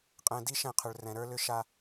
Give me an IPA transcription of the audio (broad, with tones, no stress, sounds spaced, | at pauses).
qʼ ɛ̃˨ d i˦ ʃ ɛ̃˦˨ qʰ ʏ˨ ɭ r ɛ̃˨ ɾ ə˞˦ l ʏ˦ ʃ a˦